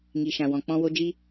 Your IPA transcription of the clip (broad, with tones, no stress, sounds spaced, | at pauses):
ŋ i˨ ʃ ã˨ w ɔ̃˨ k͡p ɔ̃˧ w o˧ d͡ʒ i˧